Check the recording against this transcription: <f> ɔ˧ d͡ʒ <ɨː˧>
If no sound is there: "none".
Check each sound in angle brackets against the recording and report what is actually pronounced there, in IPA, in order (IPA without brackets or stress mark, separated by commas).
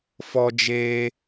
f, eː˧